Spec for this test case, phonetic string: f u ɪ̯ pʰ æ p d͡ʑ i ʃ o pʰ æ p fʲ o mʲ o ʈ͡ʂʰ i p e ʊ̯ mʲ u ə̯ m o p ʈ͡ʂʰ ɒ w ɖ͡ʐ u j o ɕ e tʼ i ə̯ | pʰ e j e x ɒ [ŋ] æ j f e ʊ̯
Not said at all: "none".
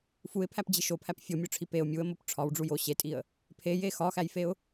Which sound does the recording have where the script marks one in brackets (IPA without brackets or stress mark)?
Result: x